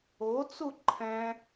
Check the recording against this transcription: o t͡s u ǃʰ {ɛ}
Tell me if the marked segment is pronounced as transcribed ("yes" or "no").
no